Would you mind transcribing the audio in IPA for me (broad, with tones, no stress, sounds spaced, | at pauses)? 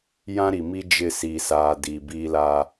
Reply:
j ã˦ ɾ i˨ m i˦ d͡ʒ ɪ˦ s i˨ s aː˨ d i˨ b iː˦ l a˦